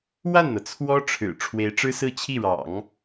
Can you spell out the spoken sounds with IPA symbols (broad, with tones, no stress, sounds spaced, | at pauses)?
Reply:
w a˥˩ n n̪ ɤ˩ t͡sʰ w ɔ˥ ʈ͡ʂʰ ɻ̩˨˩ ʈ͡ʂʰ w e˧˥ ɪ̯ ʈ͡ʂ ɻ̩˥ s ɹ̩˥˧ t͡ɕʰ i˥˩ ɻ ɑ̰˨˩˦ ŋ